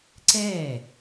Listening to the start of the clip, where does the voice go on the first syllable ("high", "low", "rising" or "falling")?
falling